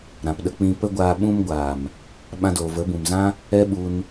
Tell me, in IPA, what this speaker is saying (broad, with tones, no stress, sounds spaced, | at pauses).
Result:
ɾ ã˨ p ɗ ə˧ k͡p ĩ˧ p ə˦ ɡʷ aː˧ ɓ ũ˧ m ɡʷ aː˨ m | ɓ ã˧ d oː˨ v ə˨˦ b ũ˨ m z ã˦ | ɛ˦ ɓ u˧ n